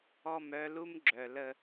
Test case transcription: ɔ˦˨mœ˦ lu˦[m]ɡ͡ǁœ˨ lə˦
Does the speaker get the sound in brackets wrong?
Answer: no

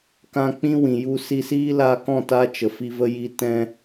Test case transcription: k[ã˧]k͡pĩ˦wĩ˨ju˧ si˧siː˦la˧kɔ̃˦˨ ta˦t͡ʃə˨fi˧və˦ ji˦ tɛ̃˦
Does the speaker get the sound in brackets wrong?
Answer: no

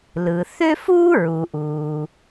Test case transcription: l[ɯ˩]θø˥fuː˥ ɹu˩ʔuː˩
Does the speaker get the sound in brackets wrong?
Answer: no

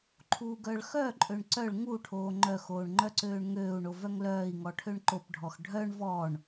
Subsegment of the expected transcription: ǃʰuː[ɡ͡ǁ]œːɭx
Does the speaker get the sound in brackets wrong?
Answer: yes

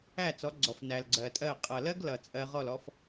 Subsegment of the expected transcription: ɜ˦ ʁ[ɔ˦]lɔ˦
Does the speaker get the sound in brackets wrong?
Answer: yes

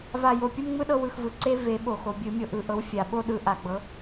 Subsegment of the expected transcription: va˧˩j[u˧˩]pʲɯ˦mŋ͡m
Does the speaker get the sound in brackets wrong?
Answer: yes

